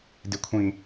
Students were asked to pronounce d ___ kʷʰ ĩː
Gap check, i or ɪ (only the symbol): ɪ